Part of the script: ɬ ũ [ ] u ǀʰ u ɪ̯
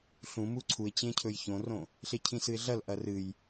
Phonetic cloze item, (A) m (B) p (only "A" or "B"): A